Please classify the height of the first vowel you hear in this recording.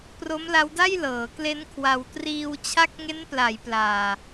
mid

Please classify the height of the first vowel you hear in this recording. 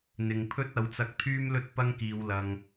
high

